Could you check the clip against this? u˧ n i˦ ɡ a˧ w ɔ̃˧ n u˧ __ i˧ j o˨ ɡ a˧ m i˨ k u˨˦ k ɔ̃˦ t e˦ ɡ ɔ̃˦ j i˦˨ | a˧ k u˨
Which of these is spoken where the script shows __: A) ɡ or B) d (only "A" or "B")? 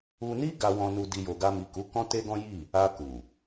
B